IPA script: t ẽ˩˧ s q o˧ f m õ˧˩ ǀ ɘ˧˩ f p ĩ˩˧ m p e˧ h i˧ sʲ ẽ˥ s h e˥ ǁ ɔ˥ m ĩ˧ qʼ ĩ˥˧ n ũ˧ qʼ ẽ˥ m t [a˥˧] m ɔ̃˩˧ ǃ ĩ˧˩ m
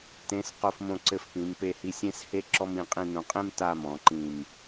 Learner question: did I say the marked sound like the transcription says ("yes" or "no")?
yes